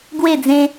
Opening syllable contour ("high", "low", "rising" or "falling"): falling